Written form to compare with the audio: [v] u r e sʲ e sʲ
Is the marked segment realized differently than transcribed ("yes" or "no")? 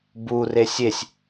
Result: yes